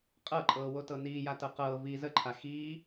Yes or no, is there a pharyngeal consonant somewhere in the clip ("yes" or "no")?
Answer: no